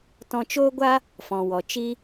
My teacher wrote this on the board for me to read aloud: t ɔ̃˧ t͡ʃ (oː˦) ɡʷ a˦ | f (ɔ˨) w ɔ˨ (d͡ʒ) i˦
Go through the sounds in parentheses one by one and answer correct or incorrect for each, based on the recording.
correct, incorrect: ɔ̃˨, incorrect: t͡ʃ

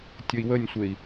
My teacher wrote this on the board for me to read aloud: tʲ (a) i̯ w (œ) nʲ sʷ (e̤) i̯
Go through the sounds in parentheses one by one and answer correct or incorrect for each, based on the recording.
incorrect: ə, incorrect: ə, incorrect: e

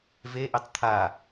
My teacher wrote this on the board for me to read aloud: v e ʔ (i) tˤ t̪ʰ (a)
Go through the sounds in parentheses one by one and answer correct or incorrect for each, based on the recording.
incorrect: e, correct

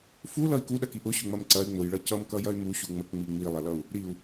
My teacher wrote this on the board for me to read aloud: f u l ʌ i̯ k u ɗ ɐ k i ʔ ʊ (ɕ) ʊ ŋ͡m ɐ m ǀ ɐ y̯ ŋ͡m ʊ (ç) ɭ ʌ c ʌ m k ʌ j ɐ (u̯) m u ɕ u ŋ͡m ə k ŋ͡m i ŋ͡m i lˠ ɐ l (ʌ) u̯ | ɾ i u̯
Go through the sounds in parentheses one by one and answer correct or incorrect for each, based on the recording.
correct, incorrect: j, incorrect: y̯, correct

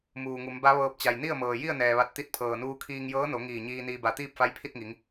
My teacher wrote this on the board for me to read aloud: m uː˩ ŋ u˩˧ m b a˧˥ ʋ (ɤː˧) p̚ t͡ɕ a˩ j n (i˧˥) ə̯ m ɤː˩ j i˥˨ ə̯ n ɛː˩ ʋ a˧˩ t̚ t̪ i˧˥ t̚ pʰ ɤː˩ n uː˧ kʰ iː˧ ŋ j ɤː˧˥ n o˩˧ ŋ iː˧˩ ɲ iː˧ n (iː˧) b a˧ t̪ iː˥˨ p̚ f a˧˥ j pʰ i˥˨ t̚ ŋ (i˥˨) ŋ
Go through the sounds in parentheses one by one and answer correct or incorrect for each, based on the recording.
correct, incorrect: i˥˨, correct, incorrect: i˩˧

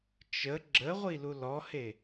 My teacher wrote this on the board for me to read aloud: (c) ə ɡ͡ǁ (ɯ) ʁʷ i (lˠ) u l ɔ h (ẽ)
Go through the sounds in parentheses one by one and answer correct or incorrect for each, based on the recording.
incorrect: t͡ʃ, incorrect: ə, incorrect: l, incorrect: e

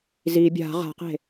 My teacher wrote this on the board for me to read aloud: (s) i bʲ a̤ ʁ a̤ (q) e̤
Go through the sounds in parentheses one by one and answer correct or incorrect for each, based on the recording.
incorrect: z, correct

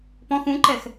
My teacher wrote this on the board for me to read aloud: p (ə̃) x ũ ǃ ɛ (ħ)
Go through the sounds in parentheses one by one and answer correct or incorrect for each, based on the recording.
incorrect: ɔ̃, incorrect: x

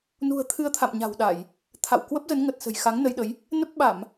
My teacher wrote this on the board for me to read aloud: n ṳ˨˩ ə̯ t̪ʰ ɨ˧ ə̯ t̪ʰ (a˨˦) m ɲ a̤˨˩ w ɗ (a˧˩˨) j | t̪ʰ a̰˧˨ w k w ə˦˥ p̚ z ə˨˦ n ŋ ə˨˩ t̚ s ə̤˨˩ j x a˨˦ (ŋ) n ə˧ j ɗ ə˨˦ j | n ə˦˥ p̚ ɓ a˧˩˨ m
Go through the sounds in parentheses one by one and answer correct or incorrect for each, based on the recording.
incorrect: a̰˧˨, correct, correct

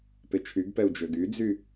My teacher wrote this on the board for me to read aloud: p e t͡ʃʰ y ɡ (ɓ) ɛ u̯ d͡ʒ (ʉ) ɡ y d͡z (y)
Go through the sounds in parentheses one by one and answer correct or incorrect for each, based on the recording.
incorrect: p, incorrect: ø, correct

